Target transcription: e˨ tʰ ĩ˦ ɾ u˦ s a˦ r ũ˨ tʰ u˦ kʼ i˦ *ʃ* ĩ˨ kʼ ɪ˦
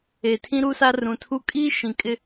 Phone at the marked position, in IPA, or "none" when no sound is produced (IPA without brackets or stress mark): ʃ